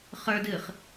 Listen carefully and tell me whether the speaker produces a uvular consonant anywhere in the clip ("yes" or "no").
yes